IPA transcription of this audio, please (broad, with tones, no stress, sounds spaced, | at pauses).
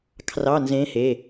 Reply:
kʰ r ɑ˧˥˧ n z ẽ˧˥ h e˩˧˩